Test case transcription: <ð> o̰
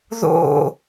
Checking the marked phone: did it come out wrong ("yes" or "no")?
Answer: no